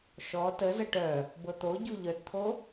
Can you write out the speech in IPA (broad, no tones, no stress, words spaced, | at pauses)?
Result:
ʃɔ təzə ʈœ | bɤt̪oɟu ʎœtt̪ʰo